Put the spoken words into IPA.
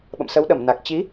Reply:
ɓ ə̰˧˨ m s ə˨˦ w ɗ ə˧˩ m n a˨˩ k̚ t͡ɕ i˨˦

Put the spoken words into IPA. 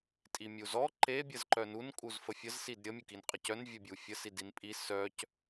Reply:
tʼ i mʲ u z ɔ ǃ e bʲ ə z ǃ œ n u n kʼ u z f ə fʲ ə z s i d ɾʲ ə mʲ u k i n qʼ ə c œ n vʲ œ bʲ u fʲ ə s i d i n pʼ i s œ c

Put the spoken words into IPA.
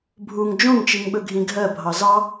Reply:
bʱ u ŋ d͡ʒ õ ŋ t͡ʃ i ŋ ɓ ɵ ɡʱ ĩ ɡʱ ɜ bʱ ɑ z ɑ

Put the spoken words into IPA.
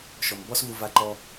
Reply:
ʃ ɔ˩ m b ɔ˥ s v u˧ v a˧˥ ǃ ɔ˧

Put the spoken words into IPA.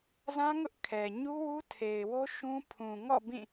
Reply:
z ã˦ ŋ ʊ˦ ʔ kʰ ɛ˨ ɲ u˦ w u˦ tʰ e˨ ɪ̯ w o˦ ʃ ũ˦ pʰ ũ˨ ŋ ɔ̰˦˨ b ĩ˦˨

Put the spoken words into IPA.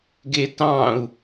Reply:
ɡ e t ɑ̃ u̯

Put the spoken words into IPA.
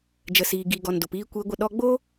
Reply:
d͡ʒ ə˨ s iː˨ ɡ i˨ ɡ ɔ˨ n d o˨ p iː˧ kʷ eː˧ ɡʷ ə˧ ɗ ɔ˧ ɡ͡b o˦

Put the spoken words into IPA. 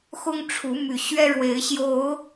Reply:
x ʊ˦ ŋ ʈ͡ʂʰ u˨˦ m y˨˩ ɕ ɥ ɛ˦ ɻ w e˨˦ ɪ̯ ɕ j o˨˦ ʊ̯

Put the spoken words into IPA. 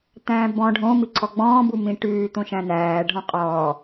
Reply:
t̪ æ̃ː b ɔ̃ ɖʱ õ m i ǀʰ ɔ ɡ͡b ɔ̃ː b u m ĩ ʈ ʉː t̪ õ ʃ æ̃ n æː ɖʱ ɔ̃ qʼ ɔː

